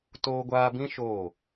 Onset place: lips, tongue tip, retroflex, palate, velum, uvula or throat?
tongue tip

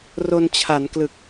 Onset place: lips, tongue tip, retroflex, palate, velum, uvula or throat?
tongue tip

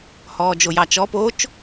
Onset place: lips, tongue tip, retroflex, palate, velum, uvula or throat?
throat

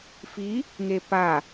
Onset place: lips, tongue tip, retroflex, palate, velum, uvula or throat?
lips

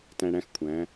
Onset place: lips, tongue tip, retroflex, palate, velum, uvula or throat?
tongue tip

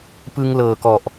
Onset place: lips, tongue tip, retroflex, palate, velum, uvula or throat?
lips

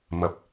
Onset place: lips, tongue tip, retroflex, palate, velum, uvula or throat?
lips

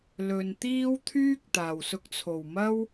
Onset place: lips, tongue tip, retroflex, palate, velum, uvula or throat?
tongue tip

